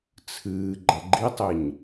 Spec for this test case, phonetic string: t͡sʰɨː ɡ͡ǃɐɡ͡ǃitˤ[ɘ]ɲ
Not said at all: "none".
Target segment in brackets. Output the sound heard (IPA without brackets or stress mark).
e